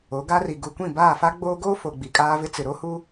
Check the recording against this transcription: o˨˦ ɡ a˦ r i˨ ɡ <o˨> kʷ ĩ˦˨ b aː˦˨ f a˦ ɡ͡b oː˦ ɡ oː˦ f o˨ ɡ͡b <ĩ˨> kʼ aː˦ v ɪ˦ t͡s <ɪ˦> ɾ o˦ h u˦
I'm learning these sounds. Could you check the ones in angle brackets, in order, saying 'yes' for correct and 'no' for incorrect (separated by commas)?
no, no, no